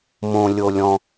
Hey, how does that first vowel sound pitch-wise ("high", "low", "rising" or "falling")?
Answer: low